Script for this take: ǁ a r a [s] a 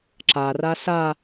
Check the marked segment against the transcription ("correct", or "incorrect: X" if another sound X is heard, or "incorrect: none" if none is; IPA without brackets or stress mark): correct